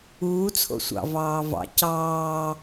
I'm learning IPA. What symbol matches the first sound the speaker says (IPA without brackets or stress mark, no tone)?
uː